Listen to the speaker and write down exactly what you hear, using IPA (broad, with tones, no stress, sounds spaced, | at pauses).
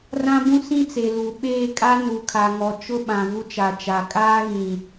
r ã˦ b ũ˦ s ĩ˦ t͡s e˨ l u˨ ɓ eː˦˨ kʼ a˦ n u˨ kʰ a˨ ŋ ɔ˨ t͡ʃ ʊ˦ ɓ ã˨ v u˦ t͡ʃ a˨ t͡ʃ a˨ kʼ aː˦ ɣ ĩ˨